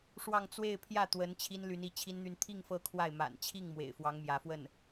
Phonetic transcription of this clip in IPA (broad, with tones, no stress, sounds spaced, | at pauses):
ʂ w ɑ˥˧ ŋ t͡s w e˥˧ ɪ̯ pʰ j ä˥˩ t̪ w ə˧˥ n t͡ɕʰ i˥ n l y˧˥ n i˧˥ t͡ɕʰ i˥ n n̪ y˥˧ n t̪ʰ i˥˧ ŋ f ɤ˥˧ kʰ w a˥˩ ɪ̯ m a̰˨˩ n t͡ɕʰ i˥˩ ŋ m w ḛ˨˩ ɪ̯ f w ɑ˧˥ ŋ m j ä˧˥ f w ə˥˩ n